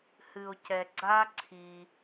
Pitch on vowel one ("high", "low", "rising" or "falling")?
low